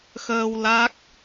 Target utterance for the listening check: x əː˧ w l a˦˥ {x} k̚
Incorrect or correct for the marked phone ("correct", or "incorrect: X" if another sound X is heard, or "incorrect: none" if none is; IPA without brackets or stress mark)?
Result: incorrect: none